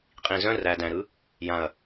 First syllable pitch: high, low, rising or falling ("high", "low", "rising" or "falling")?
low